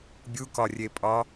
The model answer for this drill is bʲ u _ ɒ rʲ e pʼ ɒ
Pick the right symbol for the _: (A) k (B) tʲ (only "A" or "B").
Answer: A